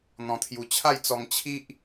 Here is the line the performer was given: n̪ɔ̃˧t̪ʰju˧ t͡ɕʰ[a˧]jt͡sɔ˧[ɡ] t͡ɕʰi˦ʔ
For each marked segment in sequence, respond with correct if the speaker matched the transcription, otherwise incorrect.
incorrect, incorrect

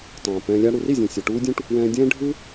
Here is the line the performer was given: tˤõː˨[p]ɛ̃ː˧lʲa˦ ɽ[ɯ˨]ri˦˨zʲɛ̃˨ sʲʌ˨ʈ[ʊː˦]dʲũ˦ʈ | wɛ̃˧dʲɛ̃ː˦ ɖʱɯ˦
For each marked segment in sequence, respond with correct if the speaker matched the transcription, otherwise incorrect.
correct, incorrect, incorrect

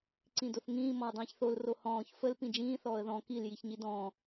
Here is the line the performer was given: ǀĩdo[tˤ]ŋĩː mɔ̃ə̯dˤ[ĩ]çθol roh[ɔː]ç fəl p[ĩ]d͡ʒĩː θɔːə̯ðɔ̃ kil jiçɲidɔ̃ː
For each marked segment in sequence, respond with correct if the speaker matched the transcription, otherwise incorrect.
incorrect, incorrect, incorrect, correct

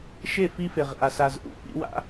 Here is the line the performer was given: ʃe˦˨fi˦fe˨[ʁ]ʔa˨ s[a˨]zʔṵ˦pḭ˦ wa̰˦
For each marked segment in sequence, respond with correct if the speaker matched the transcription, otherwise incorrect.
correct, correct

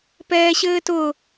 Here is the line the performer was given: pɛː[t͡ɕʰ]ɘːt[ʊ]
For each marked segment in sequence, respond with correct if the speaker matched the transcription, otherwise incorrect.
incorrect, correct

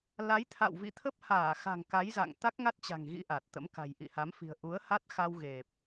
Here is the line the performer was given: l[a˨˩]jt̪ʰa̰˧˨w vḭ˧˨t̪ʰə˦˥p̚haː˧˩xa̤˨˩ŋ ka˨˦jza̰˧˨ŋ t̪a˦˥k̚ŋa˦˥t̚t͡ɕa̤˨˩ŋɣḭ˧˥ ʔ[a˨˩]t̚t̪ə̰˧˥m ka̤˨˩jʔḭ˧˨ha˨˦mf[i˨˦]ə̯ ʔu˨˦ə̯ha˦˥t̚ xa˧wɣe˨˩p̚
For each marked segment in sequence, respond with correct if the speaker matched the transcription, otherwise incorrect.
incorrect, correct, incorrect

